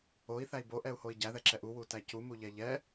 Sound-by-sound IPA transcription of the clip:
o i̯ θ æ i̯ b o ʔ ɛ u̯ h o i̯ ɟ æ ð ɛ ǁ ɛ ʔ u w u t æ c u m u ʎ ɛ ʎ ɛ

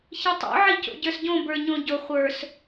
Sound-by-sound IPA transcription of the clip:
ç ɨ tˤ o̰ ʕ i c o̰ ɟ ə˞ s ɟ õ b ə˞ ɲ õ ɟ ʊ χʷ ə˞ s

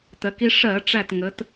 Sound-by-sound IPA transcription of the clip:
t ɜ˩˧ k i˧ ʂ ɜ˧˩˧ ʈ͡ʂ æ˧˩ t ŋ ə˩˧ t

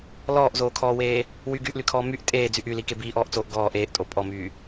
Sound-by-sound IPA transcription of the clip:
l ɔː ʔ z oː kʰ ɔː w eː | w y ɡ yː ʔ l y kʰ ɔː m y ʔ tʼ eː d͡z y ʔ y l i k e b iː ʔ ɔː ʔ t͡s oː ʔ ɡ ɔː ʔ eː ʔ tʼ o pʼ ɔ m yː

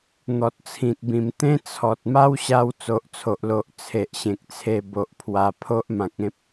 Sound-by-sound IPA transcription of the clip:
n̪ ɔ˨ t̚ t͡sʰ ĩ˨ t̚ b ĩ˨˩ m t̪ ẽ˦ t͡sʰ ɔ˨ t̚ m a˦ w ɕ a˧ w t͡s o˨ ʔ t͡sʰ o˨ ʔ l o˨ ʔ t͡sʰ e˨ ʔ ɕ ẽ˨ k̚ t͡sʰ e˧ b o˨ ʔ pʰ w a˧ pʰ o˦ ʔ m ã˨ k̚ ẽ˦ p̚

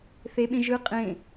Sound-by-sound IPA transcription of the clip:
θ e ɓ ẽ ʒ ɯ qʼ ẽ

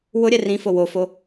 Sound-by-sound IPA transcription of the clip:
w ʊ ɾʲ ɛ r ĩ f o w o f o

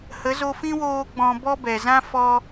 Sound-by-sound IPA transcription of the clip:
h ə˨˦ z o˧ f ĩ˦ w oː˧ ɡ͡b ɔ̃˧ b ɔ˦ b ɛ˨ z ã˦ f ɔ˧

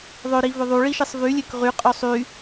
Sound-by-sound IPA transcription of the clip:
ðˤ ø ɾ i v ø ðˤ u ɭ i ʃ i sˤ v y lʲ ø k ʁ y qʼ ø sˤ y

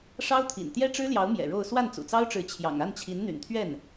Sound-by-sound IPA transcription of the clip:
ʂ ɑ˥ ʊ̯ t̪ʰ ḭ˨˩ n t̪ j ɛ˥ ʈ͡ʂ ɻ̩˥ l j ɑ˧˥ ʊ̯ m j ɛ̰˨˩ ɻ o˥˧ ʊ̯ s w a˥˩ n t͡s ṵ˨˩ t͡s ɑ˥ ʊ̯ ʈ͡ʂ ɻ̩˧˥ t͡ɕʰ j ɑ̰˨˩ ŋ a˥˩ n t͡ɕʰ i˧˥ n n̪ y̰˨˩ n t̪ʰ ɥ ɛ˥˩ n

